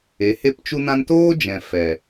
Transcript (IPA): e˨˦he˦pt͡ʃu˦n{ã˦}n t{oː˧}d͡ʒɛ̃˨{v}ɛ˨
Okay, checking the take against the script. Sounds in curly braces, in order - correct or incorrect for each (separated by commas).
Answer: correct, incorrect, incorrect